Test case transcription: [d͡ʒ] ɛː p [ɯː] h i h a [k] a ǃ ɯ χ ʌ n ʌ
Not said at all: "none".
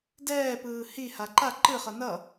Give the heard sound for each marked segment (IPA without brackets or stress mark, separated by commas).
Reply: d, ɯː, ǃ